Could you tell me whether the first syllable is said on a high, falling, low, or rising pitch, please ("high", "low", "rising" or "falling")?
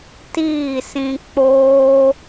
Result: falling